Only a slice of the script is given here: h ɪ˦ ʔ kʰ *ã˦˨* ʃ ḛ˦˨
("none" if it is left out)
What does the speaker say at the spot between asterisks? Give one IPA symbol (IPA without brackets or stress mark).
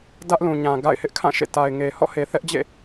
ã˦˨